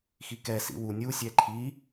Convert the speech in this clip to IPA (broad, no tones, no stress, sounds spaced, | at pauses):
x i k ɛ s ḭ w u nʲ u sʲ ɛ ǃʰ i